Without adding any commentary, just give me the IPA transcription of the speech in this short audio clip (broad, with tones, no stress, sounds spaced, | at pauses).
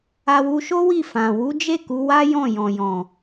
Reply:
a˧ w u˧ ʃ o˦ w i˦˨ f ã˨ w u˨˦ d͡ʒ e˦˨ k u˨˦ w a˦ j ɔ̃˦˨ j ɔ̃˨ j ɔ̃˨